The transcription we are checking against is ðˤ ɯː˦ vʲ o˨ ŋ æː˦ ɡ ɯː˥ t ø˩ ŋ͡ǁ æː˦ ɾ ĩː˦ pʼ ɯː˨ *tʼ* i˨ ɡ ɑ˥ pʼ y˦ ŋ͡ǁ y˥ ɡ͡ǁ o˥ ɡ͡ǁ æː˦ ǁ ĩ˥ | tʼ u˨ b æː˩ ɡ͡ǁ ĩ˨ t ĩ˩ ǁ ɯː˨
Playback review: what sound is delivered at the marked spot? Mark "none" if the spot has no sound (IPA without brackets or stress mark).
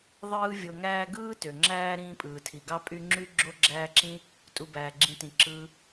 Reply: tʰ